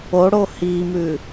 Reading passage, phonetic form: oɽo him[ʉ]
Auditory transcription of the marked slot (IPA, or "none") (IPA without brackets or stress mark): ʉ